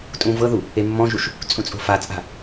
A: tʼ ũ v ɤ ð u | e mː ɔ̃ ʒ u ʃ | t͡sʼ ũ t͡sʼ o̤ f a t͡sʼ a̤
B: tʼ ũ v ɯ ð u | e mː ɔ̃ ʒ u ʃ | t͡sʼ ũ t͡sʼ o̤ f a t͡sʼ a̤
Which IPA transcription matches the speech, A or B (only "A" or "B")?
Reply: A